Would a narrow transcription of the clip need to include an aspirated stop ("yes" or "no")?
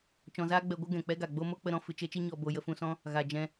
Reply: no